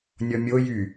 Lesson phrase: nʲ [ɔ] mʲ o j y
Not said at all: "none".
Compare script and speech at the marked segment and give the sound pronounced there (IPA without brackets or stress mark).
ɔ